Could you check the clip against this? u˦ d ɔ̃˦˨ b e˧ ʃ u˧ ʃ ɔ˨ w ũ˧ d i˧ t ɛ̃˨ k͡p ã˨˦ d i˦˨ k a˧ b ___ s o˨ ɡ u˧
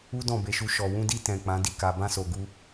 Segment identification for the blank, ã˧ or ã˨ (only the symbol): ã˧